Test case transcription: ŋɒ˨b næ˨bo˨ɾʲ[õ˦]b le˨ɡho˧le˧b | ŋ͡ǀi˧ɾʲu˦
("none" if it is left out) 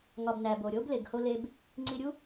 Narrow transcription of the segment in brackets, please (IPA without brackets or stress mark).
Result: o˦